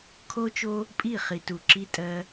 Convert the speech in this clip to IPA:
kʰ o˦ t͡ʃ o˦ | pʼ i˦˨ χ i˨ t u˨ ǁ i˧ tʼ ɜ˧

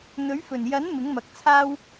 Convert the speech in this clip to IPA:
n̪ ɵ˨˥ ɥ f ɵ˨˩ n j ɐ˨˥ n m ɪ˨˥ ŋ m ɐ˨ k̚ t͡sʰ aː˥ w

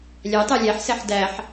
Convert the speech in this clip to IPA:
lʲ æ tˤ ɛ lʲ æ ħ s ɛ ħ d æ ħ

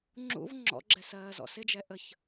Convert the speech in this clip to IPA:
ŋ͡ǁ ṵ v ŋ͡ǁ ɔ̰ ɡ͡ǁ ɛ s ɜː z ɔ̰ s ɪ d͡ʒ ɛ ʔ ə ç

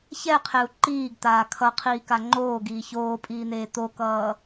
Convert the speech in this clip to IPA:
ç ɛ qʰ e u̯ ǃ iː ɡ t̪ aː kʰ ʌ qʰ iː k a ŋ͡ǃ oː ɡ iː ç oː pʼ iː n̪ eː t̪ o k ʌː

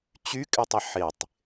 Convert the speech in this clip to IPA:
t͡ɕ y kʼ ɪ tˤ ɪ ħ ɪ tˤ

